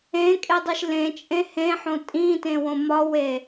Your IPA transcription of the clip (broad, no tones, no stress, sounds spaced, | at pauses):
ẽ kʼ e dˤ i ʃ l ẽ t͡ʃʼ ẽ h ẽ ħ õ tʼ ĩ t ẽ w õ m ɒ w e